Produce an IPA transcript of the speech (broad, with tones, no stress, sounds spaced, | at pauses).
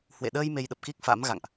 h w ḛ˧˨ ɗ əː˧ j m e˧ j ɗ ə˨˩ p̚ k i˦˥ k̚ f a̰˧˥ m ɣ a̰˧˨ ŋ ʔ